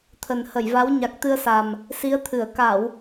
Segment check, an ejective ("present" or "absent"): absent